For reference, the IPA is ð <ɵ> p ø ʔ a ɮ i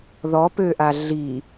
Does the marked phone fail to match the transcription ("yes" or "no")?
yes